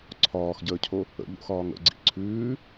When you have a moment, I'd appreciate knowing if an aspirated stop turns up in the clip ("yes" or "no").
yes